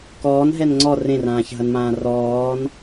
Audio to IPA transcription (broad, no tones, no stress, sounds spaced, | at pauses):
k ɔː n ɦ ɛ n ŋ͡ǀ ɔ r ẽ r ãː ç ɦ ɐ n m ãː r ɔː n